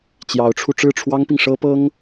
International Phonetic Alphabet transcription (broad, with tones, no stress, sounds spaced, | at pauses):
t͡ɕ j ɑ˧˥ ʊ̯ ʈ͡ʂʰ u˧ ʈ͡ʂ ɻ̩˥˩ ʈ͡ʂʰ w ɑ˥ ŋ p i˨ ŋ ʂ ɤ˥ p ɤ˥ ŋ